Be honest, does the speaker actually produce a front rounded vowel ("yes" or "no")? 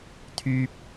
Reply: yes